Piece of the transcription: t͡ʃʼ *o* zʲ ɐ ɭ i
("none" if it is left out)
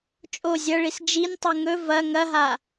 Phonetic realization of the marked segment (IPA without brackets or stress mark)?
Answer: o